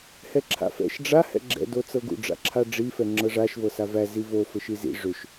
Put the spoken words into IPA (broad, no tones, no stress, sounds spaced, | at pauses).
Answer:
h ɛ ǁʰ a̰ f ɛ̰ ʃ ɖ͡ʐ a h ɛ̰ ɡ͡ǁ ɛ̰ d o t͡s ɤ ɡ ṵ ɖ͡ʐ a̰ ǁʰ a ɖ͡ʐ i f ɛ ŋ͡ǁ ɤ ʐ a ʃ v ɤ s a v æ z i v o f ɘ ʃ i z ḭ ʐ ʏ ʃ